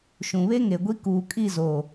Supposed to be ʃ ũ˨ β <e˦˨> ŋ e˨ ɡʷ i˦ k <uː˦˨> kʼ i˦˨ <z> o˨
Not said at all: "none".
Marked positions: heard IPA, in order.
e˦, uː˨, z

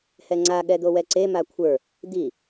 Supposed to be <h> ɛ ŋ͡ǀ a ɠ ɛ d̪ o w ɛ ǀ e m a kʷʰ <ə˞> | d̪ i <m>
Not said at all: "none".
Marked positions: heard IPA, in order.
h, ə˞, none

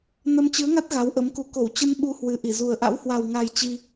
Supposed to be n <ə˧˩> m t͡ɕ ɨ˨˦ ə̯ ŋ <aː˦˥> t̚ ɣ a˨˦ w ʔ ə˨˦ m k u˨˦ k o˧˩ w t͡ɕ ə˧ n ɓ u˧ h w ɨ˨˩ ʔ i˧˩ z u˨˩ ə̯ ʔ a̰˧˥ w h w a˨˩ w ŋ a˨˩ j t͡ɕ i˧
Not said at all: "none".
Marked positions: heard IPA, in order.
ə˧, a˦˥

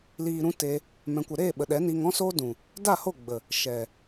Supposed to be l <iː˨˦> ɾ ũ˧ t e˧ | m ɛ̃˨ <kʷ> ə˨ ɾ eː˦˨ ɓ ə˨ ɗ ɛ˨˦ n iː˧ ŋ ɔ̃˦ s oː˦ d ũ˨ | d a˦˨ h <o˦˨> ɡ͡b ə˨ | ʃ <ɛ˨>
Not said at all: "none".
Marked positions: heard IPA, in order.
iː˨, kʷ, o˦˨, ɛ˨

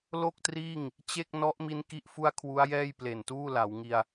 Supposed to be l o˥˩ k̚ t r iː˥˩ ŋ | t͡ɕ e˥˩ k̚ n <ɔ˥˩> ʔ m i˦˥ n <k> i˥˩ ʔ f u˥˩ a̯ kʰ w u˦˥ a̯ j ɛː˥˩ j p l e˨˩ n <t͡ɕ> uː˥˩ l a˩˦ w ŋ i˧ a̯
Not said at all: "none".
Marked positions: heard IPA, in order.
ɔ˦˥, k, t

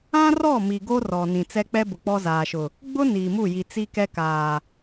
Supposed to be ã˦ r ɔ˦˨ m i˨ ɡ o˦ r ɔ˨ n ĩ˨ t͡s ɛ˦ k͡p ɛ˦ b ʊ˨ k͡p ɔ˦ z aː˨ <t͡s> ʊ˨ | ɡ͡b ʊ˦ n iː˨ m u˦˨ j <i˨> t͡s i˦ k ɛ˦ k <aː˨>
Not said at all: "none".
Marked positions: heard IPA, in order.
ʃ, i˨, aː˨

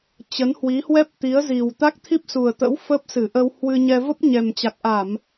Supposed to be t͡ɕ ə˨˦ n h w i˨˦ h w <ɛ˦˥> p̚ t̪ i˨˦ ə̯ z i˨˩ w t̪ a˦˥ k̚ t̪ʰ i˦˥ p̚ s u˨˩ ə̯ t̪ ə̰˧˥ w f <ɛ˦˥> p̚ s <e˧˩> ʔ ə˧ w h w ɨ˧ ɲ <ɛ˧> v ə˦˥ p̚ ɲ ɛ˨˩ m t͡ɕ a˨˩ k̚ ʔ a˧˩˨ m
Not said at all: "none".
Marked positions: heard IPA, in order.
ɛ˦˥, ə˦˥, ɨ˧˩, ɛ˧

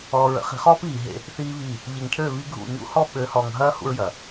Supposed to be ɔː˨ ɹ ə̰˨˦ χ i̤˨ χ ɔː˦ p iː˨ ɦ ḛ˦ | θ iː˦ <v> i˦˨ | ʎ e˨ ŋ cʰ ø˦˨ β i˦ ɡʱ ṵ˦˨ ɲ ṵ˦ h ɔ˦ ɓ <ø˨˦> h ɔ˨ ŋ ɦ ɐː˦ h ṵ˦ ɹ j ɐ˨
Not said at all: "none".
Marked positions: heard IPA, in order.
β, ø˨˦

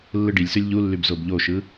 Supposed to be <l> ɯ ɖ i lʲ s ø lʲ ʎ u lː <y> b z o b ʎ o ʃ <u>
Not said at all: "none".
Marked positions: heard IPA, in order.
lː, y, ɯ

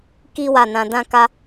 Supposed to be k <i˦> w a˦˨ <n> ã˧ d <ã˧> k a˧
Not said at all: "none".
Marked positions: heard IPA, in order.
i˦, n, ã˦

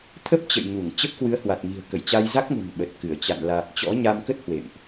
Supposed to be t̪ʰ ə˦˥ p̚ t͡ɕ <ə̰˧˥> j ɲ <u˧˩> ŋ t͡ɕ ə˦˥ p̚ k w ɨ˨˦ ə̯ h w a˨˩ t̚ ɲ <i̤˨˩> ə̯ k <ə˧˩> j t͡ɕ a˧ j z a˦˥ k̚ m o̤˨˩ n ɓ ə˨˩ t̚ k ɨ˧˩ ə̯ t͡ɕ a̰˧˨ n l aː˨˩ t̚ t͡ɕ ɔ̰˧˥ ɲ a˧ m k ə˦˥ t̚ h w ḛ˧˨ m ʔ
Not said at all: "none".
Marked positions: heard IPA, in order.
ə̰˧˨, u˧˩, i̤˨˩, ə˧˩

